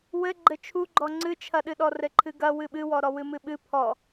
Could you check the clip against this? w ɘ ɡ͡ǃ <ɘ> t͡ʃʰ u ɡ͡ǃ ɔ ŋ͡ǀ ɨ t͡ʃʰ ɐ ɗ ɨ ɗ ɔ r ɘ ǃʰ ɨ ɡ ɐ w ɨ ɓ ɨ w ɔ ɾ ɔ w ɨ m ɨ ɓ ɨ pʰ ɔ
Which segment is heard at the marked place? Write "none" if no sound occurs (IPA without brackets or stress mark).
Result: ɘ